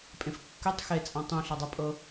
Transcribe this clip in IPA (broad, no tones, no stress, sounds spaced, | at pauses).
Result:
pʼ ẽ f kː ø tˤ x e t͡sʼ ã tˤ ũ ɬ a dˤ a pʼ ɤ